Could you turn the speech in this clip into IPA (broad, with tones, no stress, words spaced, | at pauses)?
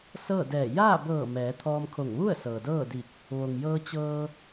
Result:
sɤː˥˨dɛː˧˩ jaː˥˨bɤː˧˩ mɛː˩˧t̪ʰɔː˧mkʰo˧˩ŋ ʋu˥˨ə̯ sɤː˩dɤː˥˨di˧˩k̚ | ʋo˩ŋjɤː˧t͡ɕɤː˧